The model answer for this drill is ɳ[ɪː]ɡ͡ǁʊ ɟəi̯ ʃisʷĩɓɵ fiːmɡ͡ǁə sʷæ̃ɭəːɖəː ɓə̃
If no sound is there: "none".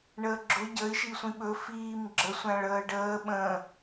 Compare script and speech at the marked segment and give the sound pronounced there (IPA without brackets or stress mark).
əː